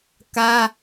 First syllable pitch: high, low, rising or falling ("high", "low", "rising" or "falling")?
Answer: high